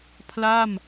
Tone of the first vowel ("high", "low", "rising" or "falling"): falling